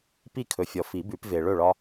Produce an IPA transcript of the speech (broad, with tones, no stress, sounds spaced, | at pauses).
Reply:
p i˥˨ kʰ ɵ˨ fʲ ɔ˨ f i˨˩˦ b ʉ˨˩˦ p v e˨ ɭ ɵ˥˨ ɭ ɒ˦